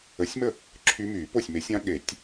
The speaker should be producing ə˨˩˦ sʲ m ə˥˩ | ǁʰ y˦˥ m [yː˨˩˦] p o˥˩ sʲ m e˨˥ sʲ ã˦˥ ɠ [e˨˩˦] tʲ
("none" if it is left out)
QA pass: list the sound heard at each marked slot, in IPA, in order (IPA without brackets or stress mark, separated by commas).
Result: yː˨˩˦, e˨˩˦